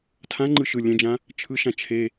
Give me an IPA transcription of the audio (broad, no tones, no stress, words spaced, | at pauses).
tʰãŋ͡ǃɯ ʃɯ lʲɛ̃d͡ʒã | t͡ʃʰɯʃã t͡ʃʰe